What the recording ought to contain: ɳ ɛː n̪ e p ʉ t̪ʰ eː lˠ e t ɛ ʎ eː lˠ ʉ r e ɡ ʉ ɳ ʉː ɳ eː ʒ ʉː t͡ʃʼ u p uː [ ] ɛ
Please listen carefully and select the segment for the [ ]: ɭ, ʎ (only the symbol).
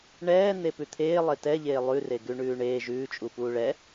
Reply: ɭ